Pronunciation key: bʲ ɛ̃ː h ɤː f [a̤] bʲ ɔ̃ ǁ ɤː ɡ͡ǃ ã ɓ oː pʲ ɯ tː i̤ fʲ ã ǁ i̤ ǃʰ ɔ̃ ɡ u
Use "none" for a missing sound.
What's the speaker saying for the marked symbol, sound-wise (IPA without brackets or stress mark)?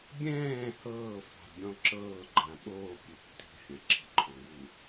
a̤